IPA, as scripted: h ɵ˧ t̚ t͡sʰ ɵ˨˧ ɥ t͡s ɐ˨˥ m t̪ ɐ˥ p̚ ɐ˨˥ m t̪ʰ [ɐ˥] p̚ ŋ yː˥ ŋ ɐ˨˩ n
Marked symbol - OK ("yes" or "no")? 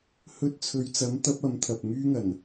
no